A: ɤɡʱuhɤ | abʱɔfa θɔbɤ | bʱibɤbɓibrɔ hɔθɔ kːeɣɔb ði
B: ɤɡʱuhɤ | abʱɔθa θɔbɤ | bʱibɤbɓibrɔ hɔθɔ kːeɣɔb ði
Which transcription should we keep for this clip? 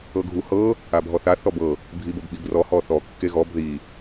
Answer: B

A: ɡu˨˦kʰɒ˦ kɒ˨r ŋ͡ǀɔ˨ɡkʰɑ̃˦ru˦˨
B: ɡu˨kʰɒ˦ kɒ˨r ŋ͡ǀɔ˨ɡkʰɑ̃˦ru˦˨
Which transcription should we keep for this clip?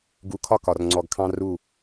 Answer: A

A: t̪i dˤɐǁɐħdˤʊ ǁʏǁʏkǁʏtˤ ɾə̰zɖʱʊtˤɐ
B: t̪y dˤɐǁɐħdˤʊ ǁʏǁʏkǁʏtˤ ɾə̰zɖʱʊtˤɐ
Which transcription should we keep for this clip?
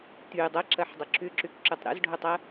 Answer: B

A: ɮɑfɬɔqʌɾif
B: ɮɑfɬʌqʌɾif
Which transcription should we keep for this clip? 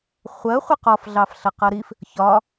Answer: B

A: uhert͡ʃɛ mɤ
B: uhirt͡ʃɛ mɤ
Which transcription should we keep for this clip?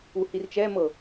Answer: B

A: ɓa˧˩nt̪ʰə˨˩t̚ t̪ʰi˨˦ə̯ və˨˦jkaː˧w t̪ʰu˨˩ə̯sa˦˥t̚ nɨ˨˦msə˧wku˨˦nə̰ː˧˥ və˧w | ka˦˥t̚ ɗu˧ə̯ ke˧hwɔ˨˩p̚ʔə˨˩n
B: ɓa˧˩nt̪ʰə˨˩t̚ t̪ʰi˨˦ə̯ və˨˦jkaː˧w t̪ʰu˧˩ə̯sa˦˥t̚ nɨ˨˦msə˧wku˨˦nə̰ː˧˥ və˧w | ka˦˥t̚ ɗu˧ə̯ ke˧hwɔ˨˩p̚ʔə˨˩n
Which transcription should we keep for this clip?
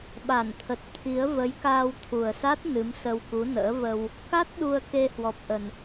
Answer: A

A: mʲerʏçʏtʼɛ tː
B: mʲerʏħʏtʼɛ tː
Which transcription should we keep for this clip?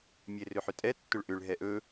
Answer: B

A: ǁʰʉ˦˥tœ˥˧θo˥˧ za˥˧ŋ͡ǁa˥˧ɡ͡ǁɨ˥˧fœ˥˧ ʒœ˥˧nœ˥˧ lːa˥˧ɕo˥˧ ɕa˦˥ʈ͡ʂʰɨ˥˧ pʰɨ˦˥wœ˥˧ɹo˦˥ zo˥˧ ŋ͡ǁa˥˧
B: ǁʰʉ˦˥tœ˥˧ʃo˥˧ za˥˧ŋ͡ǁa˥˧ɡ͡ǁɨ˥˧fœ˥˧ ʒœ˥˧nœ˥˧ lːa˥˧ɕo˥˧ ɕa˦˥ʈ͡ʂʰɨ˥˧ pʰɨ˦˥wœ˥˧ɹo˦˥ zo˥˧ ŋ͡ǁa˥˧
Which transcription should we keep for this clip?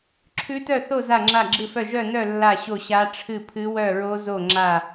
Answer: A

